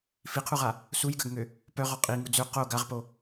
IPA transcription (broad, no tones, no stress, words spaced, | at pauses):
fiqʰuʁa | sujɡaɡŋø | pœʁɔ qʼiŋu d͡zø qo ɡaʁpo